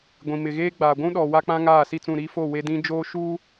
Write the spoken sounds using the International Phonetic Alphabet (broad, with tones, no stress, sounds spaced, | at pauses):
ɡʷ ĩ˨ m ɪ˨ ɣ eː˦ ɡ͡b aː˨ ɡʷ ũ˦ ɗ ɔ˨ w a˦ k͡p ã˦ ŋ aː˦˨ s i˦˨ t͡s ũ˦˨ ɾ iː˦ f o˦˨ w e˦ d ĩ˦ d͡ʒ oː˦ ʃ uː˦